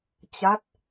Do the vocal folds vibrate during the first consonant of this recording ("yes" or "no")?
no